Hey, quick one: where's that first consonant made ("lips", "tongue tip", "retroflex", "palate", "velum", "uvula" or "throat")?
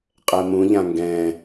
uvula